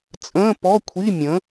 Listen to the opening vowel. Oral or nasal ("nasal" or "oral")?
nasal